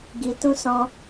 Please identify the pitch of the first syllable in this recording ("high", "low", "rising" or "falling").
low